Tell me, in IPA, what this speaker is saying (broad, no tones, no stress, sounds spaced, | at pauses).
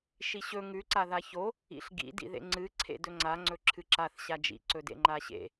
ʃ i ɕ ɵ ŋ ʉ ǀ a ð a ç o | ḭ ɬ ɡ ḭ d ḭ ð ḛ ŋ͡ǀ ɨ ǀʰ ḛ d ɵ ŋ͡ǀ a ŋ͡ǀ ɵ ǁʰ ɨ ǁ a θ ɕ a d͡ʒ ḭ ǀ ɵ d ḛ ŋ͡ǃ a ɕ ḛ